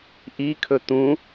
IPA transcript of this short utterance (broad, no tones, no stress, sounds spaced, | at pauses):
ʔ i kʰ ɵ t̪ ũ